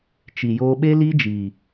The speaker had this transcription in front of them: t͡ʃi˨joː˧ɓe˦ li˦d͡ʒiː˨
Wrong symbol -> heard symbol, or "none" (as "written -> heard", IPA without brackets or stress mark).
none